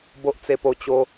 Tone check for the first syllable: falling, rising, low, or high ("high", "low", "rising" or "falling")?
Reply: high